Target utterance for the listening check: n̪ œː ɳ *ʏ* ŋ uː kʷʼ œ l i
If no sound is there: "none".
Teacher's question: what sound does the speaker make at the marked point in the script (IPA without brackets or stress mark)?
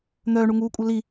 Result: u